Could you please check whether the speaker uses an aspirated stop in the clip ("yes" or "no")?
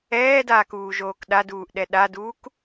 no